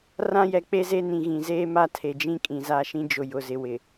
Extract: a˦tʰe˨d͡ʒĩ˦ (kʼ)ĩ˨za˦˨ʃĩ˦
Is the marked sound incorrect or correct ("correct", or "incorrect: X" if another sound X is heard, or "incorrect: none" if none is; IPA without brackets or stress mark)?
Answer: correct